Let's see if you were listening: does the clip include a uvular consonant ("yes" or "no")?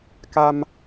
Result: no